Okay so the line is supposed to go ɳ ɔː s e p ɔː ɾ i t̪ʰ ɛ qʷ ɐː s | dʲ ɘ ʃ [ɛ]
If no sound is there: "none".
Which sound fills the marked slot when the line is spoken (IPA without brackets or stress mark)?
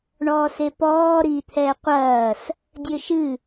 ɨ